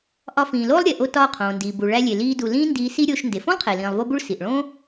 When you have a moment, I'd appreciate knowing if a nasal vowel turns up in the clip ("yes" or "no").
yes